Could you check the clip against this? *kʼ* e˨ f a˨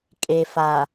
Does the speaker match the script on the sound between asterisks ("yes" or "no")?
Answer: yes